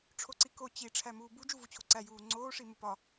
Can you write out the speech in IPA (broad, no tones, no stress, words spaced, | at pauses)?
ʈ͡ʂʰoǀiko t͡ɕi ʈ͡ʂʰæmuːbu d͡ʒuvut͡ɕʰoǀæ juːŋ͡ǀoː ʂimupɒ